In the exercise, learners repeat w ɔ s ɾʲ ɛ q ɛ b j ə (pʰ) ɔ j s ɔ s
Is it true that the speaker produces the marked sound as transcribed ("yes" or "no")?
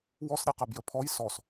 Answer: yes